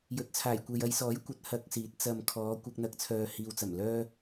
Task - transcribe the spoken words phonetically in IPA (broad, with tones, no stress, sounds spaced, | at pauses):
j ɵ˨˥ t̚ t͡sʰ aː˨˩ j kʷ e˨ j ɐ˨˧ j s ɔː˨˥ j kʷ ɐ˨˥ t̚ h ɐ˧ k̚ s iː˨˥ t̚ t͡s ɐ˨ m kʰ ɔː˨˧ kʷ ɐ˧ k̚ n̪ ɐ˧ k̚ t͡sʰ œː˨ h iː˨ w t͡s ɐ˨˩ m l œː˥